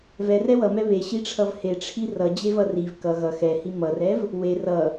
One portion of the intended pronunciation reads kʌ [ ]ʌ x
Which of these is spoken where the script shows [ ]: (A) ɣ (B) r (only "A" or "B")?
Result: A